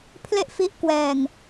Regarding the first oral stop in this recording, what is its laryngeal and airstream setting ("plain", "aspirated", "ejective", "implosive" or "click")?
aspirated